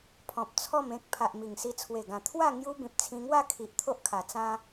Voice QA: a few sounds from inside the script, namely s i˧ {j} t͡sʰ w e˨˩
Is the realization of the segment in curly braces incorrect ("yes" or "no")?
yes